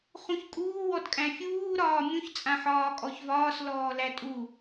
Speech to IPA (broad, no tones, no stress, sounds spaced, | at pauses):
χ ũ ç kʼ uː w ɔ d kʼ æ̃ fʲ uː ɾ ɒː mʲ ũ ç t͡sʼ ã ħ ɒː kʼ ɔ ç v ɒː s l ɔː l æ tʼ u